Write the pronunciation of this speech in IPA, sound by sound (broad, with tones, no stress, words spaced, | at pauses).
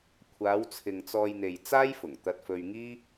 kʷʰaː˨˧w t͡sʰɪ˨ŋt͡sɔː˧jn̪e˨j t͡saː˥jfʊ˨˩ŋt̪ɐ˧t̚fɵ˧ɥ ŋiː˥